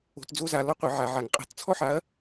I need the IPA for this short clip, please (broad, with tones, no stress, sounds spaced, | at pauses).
o̤˧˩˧ t d͡z o˥ z a˧˩˧ l ɔ˥ qʷ ə˧˩˧ ʕ a˧˩˧ ʕ a˧˩˧ ŋ qʼ a̤˧˩˧ t t͡sʰ ɔ˥ ħ a˨˥ ɐ̯